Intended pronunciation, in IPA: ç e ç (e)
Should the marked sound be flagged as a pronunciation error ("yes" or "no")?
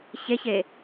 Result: no